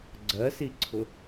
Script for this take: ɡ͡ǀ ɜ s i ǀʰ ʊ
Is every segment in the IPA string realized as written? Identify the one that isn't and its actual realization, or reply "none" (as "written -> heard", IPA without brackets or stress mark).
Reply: none